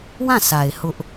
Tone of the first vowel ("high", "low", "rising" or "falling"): falling